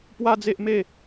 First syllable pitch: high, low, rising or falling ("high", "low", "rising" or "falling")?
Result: high